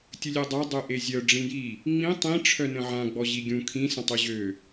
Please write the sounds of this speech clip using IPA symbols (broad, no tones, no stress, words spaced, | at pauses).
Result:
tʲəlʲœdˤa dˤøʔezʲœ ɖ͡ʐĩji | ŋ͡mĩ tˤĩ ʈ͡ʂʰœnə̃ʕã ɡ͡bɔʑiɡʲũ kʰĩ sə̃tˤyʑø